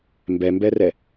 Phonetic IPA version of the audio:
mbɛmbɛrɛ

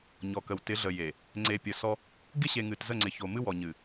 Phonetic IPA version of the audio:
ɲɔ˨kə˨w tɪ˨˦ɮə˨je˨ | ŋ͡ǀe˨ pʲə˨sɔ˦ | ɡɪ˦ɕe˨ ŋɨ˨tzə˦˨ŋ͡ǀɪ˨ ço˨mɨ˦wɔ˨ ɲɨ˨

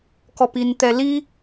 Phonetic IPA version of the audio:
kɔpint̪ɛli

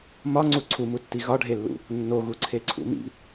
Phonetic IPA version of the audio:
mɒŋ͡ǀu ǀʰumutːi ɣɒɖʱelːṵ | nːoɣuǀʰeǀʰṵ mḭ

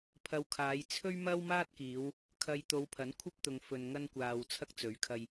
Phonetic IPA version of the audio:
pʰɐ˨wkʰaː˨˧j t͡sʰɵ˥ɥmɐ˥wmaː˥t̚kiː˨˧w | kʰɐ˨jt̪o˨˧wpʰɐ˨˥n kʷʰɐ˥p̚t̪ʊ˨ŋ fɵ˧nŋɐ˥nkʷaː˧w t͡sʰɐ˥k̚t͡sɵ˨˥ɥkʰɐ˧j

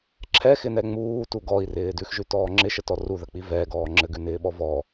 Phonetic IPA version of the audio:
ǁʰɛxɪnɛ ŋ͡muːtu ɡɔi̯rɪː dʉxʒʉtɔː ŋ͡ǁɪʃətɔ ruðək͡pi vɛɡɔː ŋ͡ǁɘɡʉnɪːɓɔ vɔ

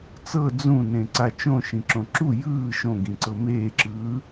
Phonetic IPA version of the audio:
t͡sɤ d͡zũnẽ ǀat͡ʃõʃĩ ǁõǁu jɯː ʃõɡĩǀɤ meːǁɯː

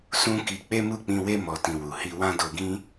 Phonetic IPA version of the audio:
sũ˦ki˧ k͡pe˦mu˦˨k͡pĩ˧we˦ mɔ˧tĩ˧wu˨ hi˧wã˦do˧ɡĩ˦

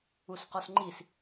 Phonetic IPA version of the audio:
usqɔsŋ͡ǃis

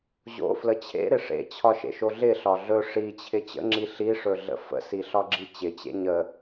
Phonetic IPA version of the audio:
ʑo̰flə t͡ɕʰḛɾɪ ʂḛt͡ɕʰɒʃḛʃo ɮɪɬɒ ɮɵ ʂit͡ɕʰɪ t͡ɕə̰ŋ͡ǁi ɬiʂɵɮə̰ fə̰siɬɒɡ͡ǁi t͡ɕɪt͡ɕḛ ɲə

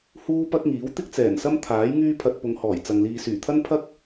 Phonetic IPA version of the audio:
huː˥ pɐ˥k̚ŋiː˨˥w t̪ɪ˥k̚t͡sɛː˨˩nsɐ˥m t̪ʰaː˨˥j ŋyː˥pʰɐ˧t̚ pʊ˨˧ŋhɔː˨˩j t͡sɐ˨ŋliː˧ syː˨˩t̪ʰɐ˥npʰɐ˥k̚

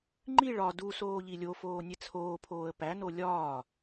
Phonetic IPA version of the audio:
ŋ͡ǃiɭ ɒ du soːʎilʲofoː nʲet͡sʰoːpʰoːə̯ pæno lʲɒː

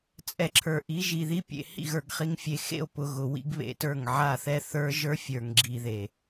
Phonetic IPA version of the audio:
t͡sʼɛ˨ǁʰə˞˨ ʔi˨˦ʒi˨ði˦pʲḛ˨ hḭ˦˨ɣə˞˨ɡχi˨ŋ fʲe˨xḛ˦˨o̯pʊ˨ ɣʊ˨wḭ˦ɡβḛ˨tə˞˦˨ŋ ʕa˦˨θɛ˦θə˞˦ ʒə˞˦fʲə˞˨ŋɡ͡ǁi˨ ðe˨

